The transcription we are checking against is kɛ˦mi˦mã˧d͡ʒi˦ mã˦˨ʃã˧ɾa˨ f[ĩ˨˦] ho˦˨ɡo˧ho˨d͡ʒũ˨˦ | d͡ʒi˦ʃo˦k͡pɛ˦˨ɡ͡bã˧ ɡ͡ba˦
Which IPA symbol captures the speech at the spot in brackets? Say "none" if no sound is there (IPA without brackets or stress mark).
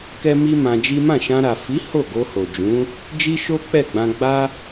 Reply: i˨˦